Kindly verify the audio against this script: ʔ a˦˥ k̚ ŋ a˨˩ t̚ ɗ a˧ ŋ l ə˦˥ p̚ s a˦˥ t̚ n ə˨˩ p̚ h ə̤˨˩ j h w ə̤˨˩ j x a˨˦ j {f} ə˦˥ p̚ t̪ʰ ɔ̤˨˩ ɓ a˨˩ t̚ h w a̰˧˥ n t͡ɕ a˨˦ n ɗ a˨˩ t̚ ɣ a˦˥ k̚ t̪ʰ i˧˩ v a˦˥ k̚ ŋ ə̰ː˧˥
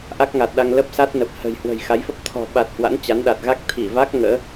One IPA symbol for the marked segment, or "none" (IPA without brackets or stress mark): f